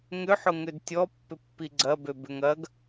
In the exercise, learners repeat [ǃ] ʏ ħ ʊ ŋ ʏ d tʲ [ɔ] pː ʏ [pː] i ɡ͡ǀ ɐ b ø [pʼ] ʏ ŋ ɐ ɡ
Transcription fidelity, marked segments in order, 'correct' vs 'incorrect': incorrect, correct, correct, incorrect

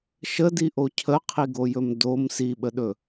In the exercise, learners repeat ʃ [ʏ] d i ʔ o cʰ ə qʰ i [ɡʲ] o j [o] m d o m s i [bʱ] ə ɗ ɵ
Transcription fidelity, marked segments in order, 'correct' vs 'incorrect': incorrect, incorrect, incorrect, incorrect

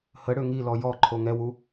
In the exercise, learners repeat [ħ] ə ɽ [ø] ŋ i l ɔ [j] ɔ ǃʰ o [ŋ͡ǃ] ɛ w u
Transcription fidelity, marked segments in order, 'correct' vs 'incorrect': incorrect, correct, correct, incorrect

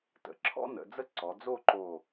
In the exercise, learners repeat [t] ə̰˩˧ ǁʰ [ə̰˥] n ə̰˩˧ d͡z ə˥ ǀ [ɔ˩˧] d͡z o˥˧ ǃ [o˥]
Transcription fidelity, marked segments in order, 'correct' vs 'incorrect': correct, incorrect, correct, incorrect

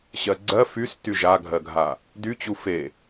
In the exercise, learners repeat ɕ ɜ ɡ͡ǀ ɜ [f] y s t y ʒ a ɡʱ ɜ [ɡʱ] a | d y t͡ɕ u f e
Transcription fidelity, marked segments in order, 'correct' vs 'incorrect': correct, correct

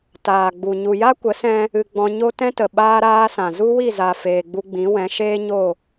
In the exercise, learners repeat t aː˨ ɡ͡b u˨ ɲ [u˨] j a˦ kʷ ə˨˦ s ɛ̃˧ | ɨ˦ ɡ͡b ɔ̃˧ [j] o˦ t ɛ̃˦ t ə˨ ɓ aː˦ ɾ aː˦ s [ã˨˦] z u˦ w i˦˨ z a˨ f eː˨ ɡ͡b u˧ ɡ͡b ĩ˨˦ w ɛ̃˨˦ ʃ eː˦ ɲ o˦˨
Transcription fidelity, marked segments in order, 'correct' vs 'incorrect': correct, incorrect, incorrect

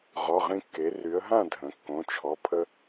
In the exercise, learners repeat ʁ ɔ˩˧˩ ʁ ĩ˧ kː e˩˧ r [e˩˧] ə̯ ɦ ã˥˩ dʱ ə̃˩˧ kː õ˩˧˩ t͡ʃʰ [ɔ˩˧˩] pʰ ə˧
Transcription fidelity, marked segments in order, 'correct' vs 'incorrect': incorrect, correct

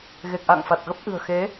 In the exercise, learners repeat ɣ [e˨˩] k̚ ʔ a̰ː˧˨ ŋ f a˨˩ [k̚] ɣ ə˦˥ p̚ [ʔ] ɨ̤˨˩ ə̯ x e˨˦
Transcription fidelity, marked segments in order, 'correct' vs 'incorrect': correct, incorrect, correct

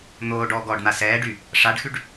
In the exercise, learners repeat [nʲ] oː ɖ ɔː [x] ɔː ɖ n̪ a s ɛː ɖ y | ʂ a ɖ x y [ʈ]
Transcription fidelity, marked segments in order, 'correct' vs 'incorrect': incorrect, incorrect, incorrect

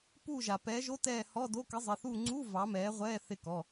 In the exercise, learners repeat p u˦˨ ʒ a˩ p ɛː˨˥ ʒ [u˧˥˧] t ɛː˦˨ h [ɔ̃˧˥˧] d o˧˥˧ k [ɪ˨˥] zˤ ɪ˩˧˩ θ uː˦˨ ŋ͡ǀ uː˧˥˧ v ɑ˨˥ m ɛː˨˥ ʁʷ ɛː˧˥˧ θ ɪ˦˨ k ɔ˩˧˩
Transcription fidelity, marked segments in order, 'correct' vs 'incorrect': incorrect, incorrect, correct

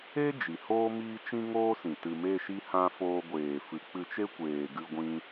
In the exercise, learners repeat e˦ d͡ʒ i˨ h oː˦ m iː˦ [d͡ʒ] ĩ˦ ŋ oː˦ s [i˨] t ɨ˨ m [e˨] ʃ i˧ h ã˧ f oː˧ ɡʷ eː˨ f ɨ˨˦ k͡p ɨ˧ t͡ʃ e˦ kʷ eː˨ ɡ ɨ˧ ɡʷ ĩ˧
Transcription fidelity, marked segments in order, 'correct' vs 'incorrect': incorrect, incorrect, incorrect

